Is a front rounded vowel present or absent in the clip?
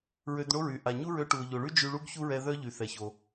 present